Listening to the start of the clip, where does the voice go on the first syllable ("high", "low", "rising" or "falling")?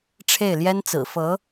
falling